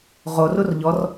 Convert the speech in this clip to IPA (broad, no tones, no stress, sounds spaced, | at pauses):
ʁ o r u r ʎ ɔ r